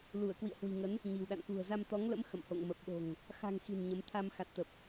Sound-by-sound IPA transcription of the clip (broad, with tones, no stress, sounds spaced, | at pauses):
l u˧˩ ə̯ k w ḭ˧˨ ə̯ h w i̤˨˩ ŋ ə˨˦ n | ɲ i̤˨˩ w ɗ a̰˧˨ n k ṳ˨˩ ə̯ z a˧ m t̪ ɔ˨˦ ŋ l ə̰˧˥ m x ə̰˧˨ m h o̰˧˨ ŋ m ə˨˩ p̚ ɗ o̤˨˩ ŋ | x a̤˨˩ ŋ x i̤˨˩ n ɲ ə˨˦ m t̪ʰ a˧ m x a˨˩ t̚ t̪ ə˨˩ p̚